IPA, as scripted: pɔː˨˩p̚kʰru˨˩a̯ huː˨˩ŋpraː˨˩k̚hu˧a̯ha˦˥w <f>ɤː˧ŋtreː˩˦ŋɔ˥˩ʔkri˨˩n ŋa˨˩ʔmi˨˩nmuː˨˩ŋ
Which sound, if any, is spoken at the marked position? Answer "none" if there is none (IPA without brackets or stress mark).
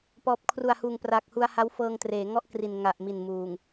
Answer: f